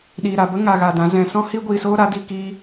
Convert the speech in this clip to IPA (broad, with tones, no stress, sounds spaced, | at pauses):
ɗ iː˨ ɾ a˨ b ə˦ ŋ a˧ ɣ a˧ d ã˨˦ z ɛ̃˨ s ɔ̃˦ h iː˦ ɡʷ iː˨ s oː˦ ɾ a˨˦ d i˧ k iː˧